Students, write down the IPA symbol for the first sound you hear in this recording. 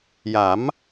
j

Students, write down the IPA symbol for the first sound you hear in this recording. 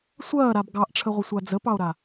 sʷ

